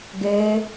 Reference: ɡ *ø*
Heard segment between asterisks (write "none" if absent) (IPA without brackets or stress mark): ø